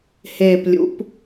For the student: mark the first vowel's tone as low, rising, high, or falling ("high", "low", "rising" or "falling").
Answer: low